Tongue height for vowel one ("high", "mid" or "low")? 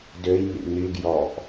mid